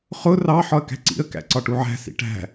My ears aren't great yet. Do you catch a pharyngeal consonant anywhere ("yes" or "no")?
yes